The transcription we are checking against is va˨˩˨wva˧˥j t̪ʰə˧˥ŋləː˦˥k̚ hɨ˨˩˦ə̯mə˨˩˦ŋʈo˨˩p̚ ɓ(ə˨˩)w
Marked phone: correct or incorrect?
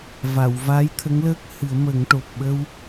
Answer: incorrect